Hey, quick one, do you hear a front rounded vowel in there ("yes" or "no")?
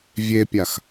no